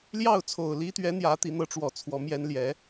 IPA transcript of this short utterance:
l j ɑ˥˩ ʊ̯ t͡sʰ o˨˩ ʊ̯ l i˥ t̪ ɥ ɛ˧˥ n̪ j ä˧˥ t̪ i˧˥ n̪ ɤ˧˥ ʈ͡ʂ w ɔ˨˩ t͡sʰ w ɔ˧˥ m j ɛ˥ n l j ɛ˧˥

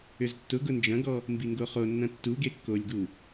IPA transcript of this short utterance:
ʏ z tː ʊ ɡ ʊ n d͡ʒ ɐ̃ ɡ ɔ | m b i ŋ ɡ o χ o nː ɐ̃ tː u ɡ e kː o lʲ ɡ u

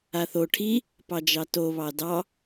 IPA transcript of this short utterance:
a θ o ʈʰ i | p ɑ d͡ʒ ɑ t o β ɑ d ɑ

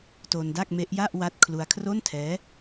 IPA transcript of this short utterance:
t o˧ n d a˥˩ k̚ m e˦˥ ʔ j a˥˩ ʔ w a˦˥ t̚ kʰ l u˧ a̯ kʰ r o˥˩ n tʰ ɛː˦˥

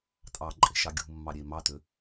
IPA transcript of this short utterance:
tʼ ɑ ǃʼ e̤ ʃ ɑ ɡʲ ṳ mː ɑ ɾʲ e m ɑ t ø

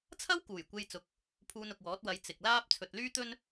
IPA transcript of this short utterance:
t͡sʰ ɐ˥ w k uː˨˩ j kʷ e˧ j t͡s ʊ˨˥ k̚ | pʰ uː˧ n ʊ˨ k̚ w ɔː˨˥ t̚ w ɐ˨˧ j t͡s ɪ˨ k̚ l aː˥ p̚ t͡sʰ ɵ˨ t̚ l yː˥ t̪ ɵ˥ n

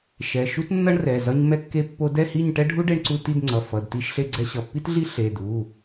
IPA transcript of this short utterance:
ʃ ɛ˩˧˩ ʃ u˥ t nː ʌ˥ ɳ r ɛ˩˧˩ z ʌ˥ ɲ m ɛ˥ kː e˥ pː o˥ d ɛ˥˨ h i˥˨ ɲ ʈ ɛ˥ ɖʱ u˥ ɖ e˥˨ ɳ ǀ u˥˨ t i˥˨ d ŋ͡ǀ ʌ˩˧˩ f ʌ˩˧˩ d t i˥ ʃ ɬ e˥ ɡ͡ǀ ɛ˥ ɕ ʌ˩˧˩ pː i˥ t ɮ i˥ ɬ e˩˧˩ d u˩˧˩

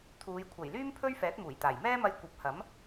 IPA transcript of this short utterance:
t̪ʰ uː˨˧ j kʷʰ ɐ˨˩ j l yː˥ m pʰ ɵ˥ ɥ f ɛː˨˥ t̚ m uː˨˩ j t̪ aː˨˩ j m ɛː˥ m ɐ˧ j kʷ ɐ˨˥ p̚ h ɐ˨˥ m

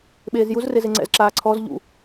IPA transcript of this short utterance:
ɓ eː z j u z r e z e ŋ͡ǀ ɛ̰ z ǁ aː ǀʰ ɔ z ʎ ṵ

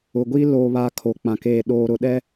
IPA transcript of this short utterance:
ʊ˨ ɡʷ i˦ l oː˨ β a˨ kʰ o˨ k͡p ã˨ k eː˨ ɗ oː˨ ɾ ʊ˨ ɗ ɛ˦

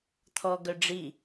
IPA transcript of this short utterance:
t̪ʰ ɔ ɡ œ ɖ͡ʐ i

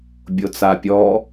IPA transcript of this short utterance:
bʲ o t͡s a pʲ ɔ

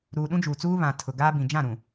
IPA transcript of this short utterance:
ɾ uː˨ ɗ ũ˦ d͡ʒ uː˨ t͡s uː˦ β ã˨ tʰ ʊ˨ ɡ aː˦ b ĩ˨ d͡ʒ ã˦˨ ɾ ũ˨

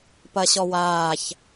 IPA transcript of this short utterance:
p ɐ ɕ ɔ w aː ç

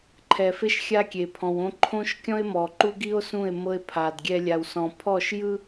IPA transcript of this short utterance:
ǃʰ ɛ˨ f e˦ ʃ xʲ a˦ kʲ e˨ pʰ ɔ̃˨ w õ˦ ǃʰ õ˦ ʃ kʲ ɔ̃˦ e̯ m ɔ˨ ǃ u˦ ɡ i˦ o̯ s ũ˦˨ e̯ m ɤ˦ e̯ pʰ a˨ d ɡʲ ɛ˦ lʲ a˨ w s ɔ̃˨ pʰ ɔ˦˨ ʃ j ɯ˦

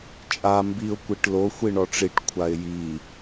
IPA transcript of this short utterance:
t͡ʃʼ a m b i ʊ̯ kʷ i ʈ l o xʷ i ɳ ɔ ʈ͡ʂ i ʈ kʷʰ a ɪ̯ j i

